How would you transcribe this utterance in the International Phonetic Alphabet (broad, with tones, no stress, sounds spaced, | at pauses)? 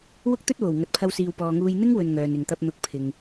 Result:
w ʊ˥ k̚ t̪ ɵ˥ t̚ w o˨˩ w ŋ ɐ˨ t̚ pʰ ɐ˧ w s iː˨ w p ɔː˨ ŋ uː˧ j n̪ ɪ˥ ŋ w ɵ˨ n ŋ œː˨ n ɪ˨ ŋ t̪ ɐ˧ p̚ n̪ ʊ˨ k̚ pʰ ɪ˨ ŋ